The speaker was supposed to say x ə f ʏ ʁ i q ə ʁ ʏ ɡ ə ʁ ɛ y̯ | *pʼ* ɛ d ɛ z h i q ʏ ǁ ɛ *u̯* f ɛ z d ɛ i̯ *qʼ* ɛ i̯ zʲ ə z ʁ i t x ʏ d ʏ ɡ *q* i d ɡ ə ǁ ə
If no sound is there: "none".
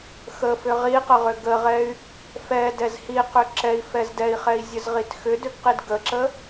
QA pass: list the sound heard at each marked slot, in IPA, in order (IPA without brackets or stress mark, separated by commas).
f, i̯, χ, q